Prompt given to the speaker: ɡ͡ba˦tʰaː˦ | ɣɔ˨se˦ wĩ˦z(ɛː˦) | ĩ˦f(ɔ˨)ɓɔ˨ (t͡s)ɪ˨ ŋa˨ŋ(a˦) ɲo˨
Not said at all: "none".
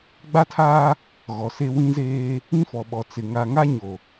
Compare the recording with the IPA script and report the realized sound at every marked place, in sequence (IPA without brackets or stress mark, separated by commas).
eː˦, ɔ˨, t͡s, a˦